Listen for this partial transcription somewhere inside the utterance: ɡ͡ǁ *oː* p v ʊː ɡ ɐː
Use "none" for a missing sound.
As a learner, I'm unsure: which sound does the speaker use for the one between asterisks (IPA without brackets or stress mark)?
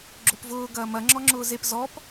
o